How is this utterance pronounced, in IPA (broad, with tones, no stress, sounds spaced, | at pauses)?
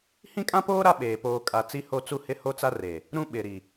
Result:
h ĩ˦ kʼ ã˦ p oː˦ ɾ a˦ ɓ eː˨ p oː˨ kʼ a˨ t͡s i˦ h o˦ t͡s u˦ h ɪ˦ h o˦ t͡s a˦ r eː˨ | ɾ ũ˦ ɓ ɪ˨ ɾ i˨